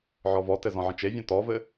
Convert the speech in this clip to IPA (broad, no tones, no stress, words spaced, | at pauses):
ʕɔvɔtɘ zɔ̃ʕə̃t͡ʃevʲɔ̃ tɔvɘ